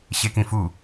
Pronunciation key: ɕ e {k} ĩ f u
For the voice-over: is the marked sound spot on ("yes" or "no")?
yes